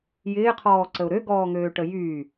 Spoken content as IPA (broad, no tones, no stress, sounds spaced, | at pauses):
j ɪː qʰ ɔː ǀ ə ʊ̯ ɾ ø ɡ ɔː ŋ øː ʈ ə j yː